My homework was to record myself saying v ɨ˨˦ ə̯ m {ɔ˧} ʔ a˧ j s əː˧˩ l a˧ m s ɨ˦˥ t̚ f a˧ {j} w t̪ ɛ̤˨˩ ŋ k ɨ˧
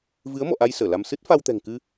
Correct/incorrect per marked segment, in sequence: incorrect: ɔ̰˧˨, incorrect: none

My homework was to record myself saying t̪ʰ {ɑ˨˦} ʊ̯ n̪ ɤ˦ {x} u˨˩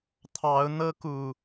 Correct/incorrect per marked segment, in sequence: correct, incorrect: k

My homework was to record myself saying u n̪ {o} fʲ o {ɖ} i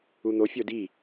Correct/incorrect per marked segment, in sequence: correct, incorrect: d

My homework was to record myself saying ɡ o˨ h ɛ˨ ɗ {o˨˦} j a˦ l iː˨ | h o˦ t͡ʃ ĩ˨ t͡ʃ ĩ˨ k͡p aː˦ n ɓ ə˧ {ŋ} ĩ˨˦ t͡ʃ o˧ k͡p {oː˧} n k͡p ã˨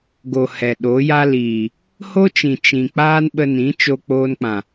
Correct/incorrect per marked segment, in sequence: correct, incorrect: n, correct

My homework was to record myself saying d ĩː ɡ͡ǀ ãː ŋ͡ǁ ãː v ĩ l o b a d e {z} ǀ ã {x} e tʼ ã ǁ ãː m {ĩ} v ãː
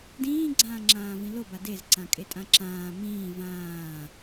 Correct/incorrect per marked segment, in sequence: correct, incorrect: kʼ, incorrect: ĩː

